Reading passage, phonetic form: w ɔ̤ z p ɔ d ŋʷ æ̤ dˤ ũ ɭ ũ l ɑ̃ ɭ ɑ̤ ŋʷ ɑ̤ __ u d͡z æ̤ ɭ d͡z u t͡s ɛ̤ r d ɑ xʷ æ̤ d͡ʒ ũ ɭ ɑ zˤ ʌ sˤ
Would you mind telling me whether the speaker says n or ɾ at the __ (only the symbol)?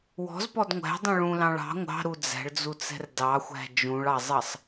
ɾ